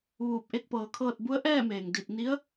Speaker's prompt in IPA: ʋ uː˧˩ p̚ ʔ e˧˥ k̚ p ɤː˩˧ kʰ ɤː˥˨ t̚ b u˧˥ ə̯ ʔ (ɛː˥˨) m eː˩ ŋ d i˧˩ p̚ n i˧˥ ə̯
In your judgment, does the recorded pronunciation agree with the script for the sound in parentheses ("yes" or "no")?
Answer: yes